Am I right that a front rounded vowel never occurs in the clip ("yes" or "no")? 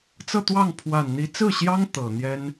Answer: yes